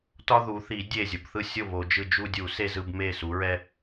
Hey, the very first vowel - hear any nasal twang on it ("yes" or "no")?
no